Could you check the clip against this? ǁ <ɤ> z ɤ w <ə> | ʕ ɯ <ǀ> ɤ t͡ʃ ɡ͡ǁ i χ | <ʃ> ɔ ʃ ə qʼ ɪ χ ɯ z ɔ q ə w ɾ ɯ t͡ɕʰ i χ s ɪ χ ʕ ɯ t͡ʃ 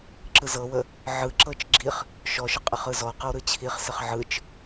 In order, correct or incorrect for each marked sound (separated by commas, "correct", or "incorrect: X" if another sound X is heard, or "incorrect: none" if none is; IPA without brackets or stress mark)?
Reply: incorrect: ɯ, correct, incorrect: ǁ, correct